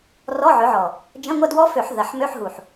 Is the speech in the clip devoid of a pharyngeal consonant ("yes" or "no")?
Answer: no